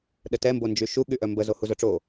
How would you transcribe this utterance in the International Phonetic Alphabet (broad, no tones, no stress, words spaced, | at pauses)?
ɗətɛ mbond͡ʒyʃu ɠyʔœmbə zohuzœʈ͡ʂo